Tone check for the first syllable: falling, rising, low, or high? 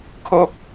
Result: falling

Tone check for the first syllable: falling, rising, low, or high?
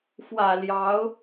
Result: low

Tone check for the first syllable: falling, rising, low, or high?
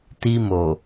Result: high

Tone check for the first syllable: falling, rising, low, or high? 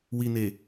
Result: low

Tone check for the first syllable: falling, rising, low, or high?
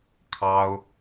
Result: high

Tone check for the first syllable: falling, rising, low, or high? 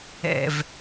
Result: low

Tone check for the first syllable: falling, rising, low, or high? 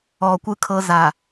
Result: low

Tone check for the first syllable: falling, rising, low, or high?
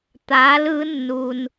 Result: rising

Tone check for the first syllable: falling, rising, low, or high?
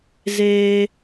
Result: high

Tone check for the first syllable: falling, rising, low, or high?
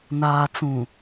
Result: low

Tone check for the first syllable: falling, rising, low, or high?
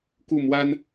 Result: falling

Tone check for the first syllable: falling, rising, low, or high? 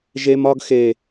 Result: high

